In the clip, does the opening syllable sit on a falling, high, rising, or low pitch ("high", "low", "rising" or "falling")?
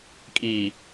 low